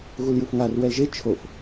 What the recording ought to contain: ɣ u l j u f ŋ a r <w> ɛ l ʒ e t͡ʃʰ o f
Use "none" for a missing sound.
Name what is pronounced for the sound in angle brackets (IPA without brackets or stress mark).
w